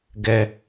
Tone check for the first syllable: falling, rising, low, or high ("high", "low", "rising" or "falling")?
high